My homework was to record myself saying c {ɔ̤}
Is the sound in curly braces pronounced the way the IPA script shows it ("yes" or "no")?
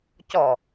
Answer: no